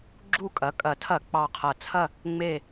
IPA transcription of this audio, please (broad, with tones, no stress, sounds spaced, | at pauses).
ɡ͡ǁ u˦˨ kʼ ɐ˩˥ kʼ ɐ˨˩ tʰ ɐ˧˩˧ k͡p ɑ˨˩ qʰ ɐ˨˩ t͡sʰ ɐ˦˨ | ŋ͡m e˦˨